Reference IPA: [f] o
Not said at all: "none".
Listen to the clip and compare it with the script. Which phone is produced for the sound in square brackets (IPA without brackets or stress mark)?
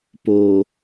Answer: p